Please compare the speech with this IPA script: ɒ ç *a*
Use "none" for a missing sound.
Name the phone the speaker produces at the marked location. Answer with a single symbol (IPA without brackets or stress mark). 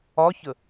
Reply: ə